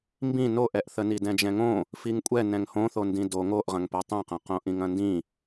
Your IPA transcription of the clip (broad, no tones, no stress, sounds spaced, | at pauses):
m b ĩ n o ʔ ɛ ʔ θ ə n i d ɛ̃ d͡ʒ ɛ̃ ŋ õ | f i ŋ kʷʼ ɛ n ɛ̃ ŋ h õ θ o n d ĩ d o ŋ o ʔ ʁ ɐ̃ ŋ p ɛ tˤ ĩ q ɐ̃ q õ ʔ ĩ ŋ ɐ̃ n d ĩ